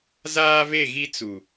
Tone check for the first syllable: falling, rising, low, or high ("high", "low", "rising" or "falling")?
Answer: high